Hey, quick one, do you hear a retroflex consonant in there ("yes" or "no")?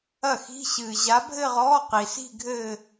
no